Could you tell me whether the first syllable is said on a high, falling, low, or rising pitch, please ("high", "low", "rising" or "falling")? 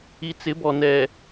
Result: low